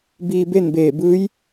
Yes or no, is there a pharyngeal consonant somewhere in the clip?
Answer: no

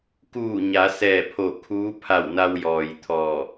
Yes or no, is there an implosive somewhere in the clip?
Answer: no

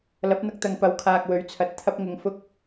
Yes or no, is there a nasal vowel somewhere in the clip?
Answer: no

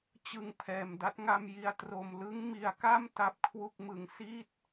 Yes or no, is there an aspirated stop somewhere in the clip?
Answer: yes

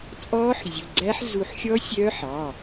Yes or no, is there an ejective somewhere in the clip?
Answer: yes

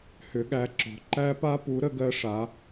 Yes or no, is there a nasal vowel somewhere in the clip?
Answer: no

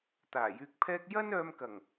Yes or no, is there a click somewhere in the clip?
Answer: no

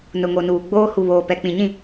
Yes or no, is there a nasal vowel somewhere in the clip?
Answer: yes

